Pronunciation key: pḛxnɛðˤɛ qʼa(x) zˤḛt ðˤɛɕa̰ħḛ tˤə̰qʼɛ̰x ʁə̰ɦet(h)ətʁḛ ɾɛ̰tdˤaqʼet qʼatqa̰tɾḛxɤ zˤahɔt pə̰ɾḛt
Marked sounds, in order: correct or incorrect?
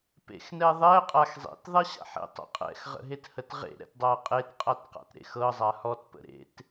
correct, correct

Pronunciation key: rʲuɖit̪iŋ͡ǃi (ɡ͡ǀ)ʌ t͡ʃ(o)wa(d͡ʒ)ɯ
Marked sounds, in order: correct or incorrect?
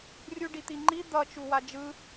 incorrect: d̪, incorrect: u, correct

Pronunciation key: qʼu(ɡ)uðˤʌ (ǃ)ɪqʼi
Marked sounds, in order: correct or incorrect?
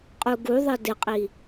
correct, incorrect: d

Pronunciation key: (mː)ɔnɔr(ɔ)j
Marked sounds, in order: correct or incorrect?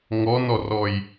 incorrect: ŋ, correct

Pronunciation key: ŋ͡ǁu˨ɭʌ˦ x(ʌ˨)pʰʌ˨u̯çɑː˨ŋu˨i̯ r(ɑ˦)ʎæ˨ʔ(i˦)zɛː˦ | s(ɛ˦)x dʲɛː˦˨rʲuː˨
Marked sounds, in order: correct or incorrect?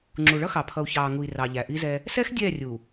incorrect: ɑ˨, incorrect: ɑ˨, correct, correct

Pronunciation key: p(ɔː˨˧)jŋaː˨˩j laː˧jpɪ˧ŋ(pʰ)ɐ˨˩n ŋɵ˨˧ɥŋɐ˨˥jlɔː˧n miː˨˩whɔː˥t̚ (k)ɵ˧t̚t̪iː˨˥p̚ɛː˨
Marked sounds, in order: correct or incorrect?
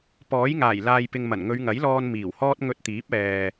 incorrect: ɔː˨˥, incorrect: m, incorrect: ŋ

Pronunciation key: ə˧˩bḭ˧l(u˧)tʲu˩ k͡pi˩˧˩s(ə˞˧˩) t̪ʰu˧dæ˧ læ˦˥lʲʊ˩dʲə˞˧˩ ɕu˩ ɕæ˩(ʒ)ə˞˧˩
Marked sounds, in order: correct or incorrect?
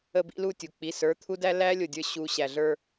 incorrect: u˧˩, incorrect: ə˞˩˧˩, incorrect: ɮ

